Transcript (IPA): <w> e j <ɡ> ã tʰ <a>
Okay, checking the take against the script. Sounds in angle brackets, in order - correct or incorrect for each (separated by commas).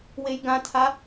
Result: correct, correct, correct